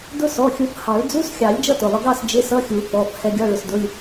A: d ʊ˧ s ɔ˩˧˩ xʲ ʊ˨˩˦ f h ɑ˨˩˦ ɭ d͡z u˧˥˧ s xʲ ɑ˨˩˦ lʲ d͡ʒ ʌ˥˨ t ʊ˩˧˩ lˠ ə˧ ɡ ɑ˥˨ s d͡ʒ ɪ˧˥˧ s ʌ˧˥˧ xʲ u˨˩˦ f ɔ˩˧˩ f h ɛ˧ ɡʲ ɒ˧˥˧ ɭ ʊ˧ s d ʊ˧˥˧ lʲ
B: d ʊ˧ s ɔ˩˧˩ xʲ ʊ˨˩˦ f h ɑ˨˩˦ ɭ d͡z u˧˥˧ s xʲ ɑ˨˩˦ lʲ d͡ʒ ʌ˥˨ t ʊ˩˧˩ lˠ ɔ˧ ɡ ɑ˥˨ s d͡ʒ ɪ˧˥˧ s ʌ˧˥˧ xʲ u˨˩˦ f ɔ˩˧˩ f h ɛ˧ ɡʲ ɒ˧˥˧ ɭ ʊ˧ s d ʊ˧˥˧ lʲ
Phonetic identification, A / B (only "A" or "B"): A